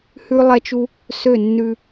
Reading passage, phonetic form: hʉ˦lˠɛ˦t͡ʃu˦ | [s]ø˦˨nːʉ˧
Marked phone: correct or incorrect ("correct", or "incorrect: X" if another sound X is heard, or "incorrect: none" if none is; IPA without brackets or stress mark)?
correct